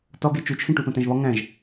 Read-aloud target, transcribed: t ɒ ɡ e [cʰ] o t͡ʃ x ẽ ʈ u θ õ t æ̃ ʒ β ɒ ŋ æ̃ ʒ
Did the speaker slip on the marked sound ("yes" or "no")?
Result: yes